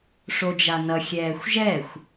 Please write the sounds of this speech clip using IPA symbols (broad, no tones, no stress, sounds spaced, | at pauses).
ʂ o d͡ʒ a n ʌ xʲ ɛː xʷ ʒ ɛ xʷ